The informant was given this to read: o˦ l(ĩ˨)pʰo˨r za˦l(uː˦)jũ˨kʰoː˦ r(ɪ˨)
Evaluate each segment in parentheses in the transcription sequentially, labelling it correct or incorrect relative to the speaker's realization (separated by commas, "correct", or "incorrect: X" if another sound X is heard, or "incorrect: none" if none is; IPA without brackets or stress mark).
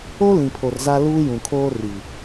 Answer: correct, correct, incorrect: i˨